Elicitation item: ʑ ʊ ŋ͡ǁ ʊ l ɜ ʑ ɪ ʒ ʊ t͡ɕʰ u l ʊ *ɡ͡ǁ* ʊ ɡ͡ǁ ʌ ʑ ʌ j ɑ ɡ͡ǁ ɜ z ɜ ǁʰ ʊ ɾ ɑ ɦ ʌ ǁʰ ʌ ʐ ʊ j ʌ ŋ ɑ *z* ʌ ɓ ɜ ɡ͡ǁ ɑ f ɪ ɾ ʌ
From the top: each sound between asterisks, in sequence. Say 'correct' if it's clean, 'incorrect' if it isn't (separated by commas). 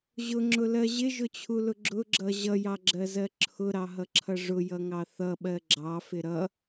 correct, incorrect